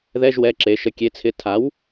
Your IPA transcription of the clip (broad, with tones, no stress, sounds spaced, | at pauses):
ð ɛ˧˥˧ ʒ w ɛ˩˧˩ ǁ e˩˧ ʃ ə˩˧ kʲ e˩˥ t͡sʰ ɪ˩˥ tʰ a˩˥ w